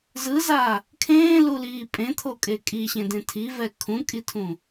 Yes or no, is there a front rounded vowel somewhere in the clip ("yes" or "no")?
no